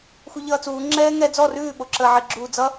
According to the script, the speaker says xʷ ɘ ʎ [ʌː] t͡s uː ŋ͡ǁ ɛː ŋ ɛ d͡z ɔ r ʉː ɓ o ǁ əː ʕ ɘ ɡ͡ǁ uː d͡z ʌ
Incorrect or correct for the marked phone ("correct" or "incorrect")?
correct